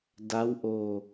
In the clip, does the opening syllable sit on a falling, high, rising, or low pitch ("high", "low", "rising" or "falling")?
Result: rising